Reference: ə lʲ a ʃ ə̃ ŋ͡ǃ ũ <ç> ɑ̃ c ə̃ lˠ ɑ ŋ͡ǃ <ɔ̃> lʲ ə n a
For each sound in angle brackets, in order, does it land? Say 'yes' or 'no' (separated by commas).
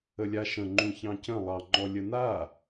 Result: yes, no